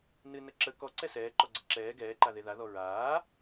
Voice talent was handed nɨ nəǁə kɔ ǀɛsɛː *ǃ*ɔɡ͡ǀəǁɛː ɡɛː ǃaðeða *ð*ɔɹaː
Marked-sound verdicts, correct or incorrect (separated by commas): correct, correct